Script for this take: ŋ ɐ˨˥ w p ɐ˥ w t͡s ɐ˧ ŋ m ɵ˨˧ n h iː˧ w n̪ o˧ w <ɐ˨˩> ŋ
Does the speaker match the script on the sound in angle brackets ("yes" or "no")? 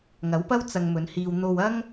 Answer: no